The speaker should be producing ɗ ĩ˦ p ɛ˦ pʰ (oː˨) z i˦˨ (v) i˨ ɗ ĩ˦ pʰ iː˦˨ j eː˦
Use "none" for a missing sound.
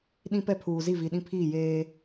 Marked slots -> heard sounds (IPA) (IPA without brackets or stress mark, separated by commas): uː˨, v